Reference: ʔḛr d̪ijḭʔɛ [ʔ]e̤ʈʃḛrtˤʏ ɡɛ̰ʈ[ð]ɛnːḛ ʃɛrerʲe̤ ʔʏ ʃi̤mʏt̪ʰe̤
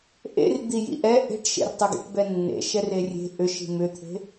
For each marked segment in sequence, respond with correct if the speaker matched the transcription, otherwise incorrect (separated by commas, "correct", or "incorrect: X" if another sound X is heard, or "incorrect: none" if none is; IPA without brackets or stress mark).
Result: correct, incorrect: b